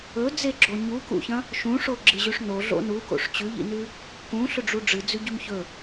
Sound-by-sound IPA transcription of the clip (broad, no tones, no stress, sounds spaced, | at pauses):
ɵ d͡z e ɡ͡ǁ o ɲ u k ṵ ç ɐ̃ | ʃ ũ ʂ o ɡ͡ǁ ɨ ʑ ʉ ʂ n o ɮ o̰ n u k o̰ ʂ t͡ɕ ʉ ʎ ḭ n ʉ | k ũ ɬ ɵ ɖ͡ʐ u ɖ͡ʐ ɨ d͡z ʉ ɟ ʉ m ç ɵ